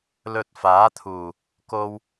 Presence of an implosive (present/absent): absent